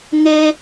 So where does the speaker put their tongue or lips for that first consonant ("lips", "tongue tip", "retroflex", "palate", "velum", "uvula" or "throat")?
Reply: velum